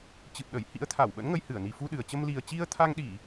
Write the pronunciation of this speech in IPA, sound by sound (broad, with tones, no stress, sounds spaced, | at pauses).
t͡ɕ ɨ˨˩ p̚ ɗ ə˧˩ j h ḭ˧˥ ə̯ t̪ʰ a˧˩ w ɓ ə̰˧˥ n ŋ ə˧ j h ɨ˧˩ ə̯ n i˨˩ f u˧ ɗ ɨ˨˩ ə̯ t͡ɕ ə˧ m l i˨˩ ə̯ t͡ɕ i˧ ə̯ t̪ʰ a˧ ŋ ɗ i˧˩˨